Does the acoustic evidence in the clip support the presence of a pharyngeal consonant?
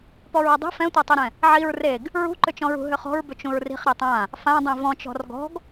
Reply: yes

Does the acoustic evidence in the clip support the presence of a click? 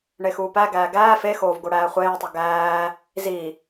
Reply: no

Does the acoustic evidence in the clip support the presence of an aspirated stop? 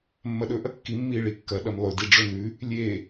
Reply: no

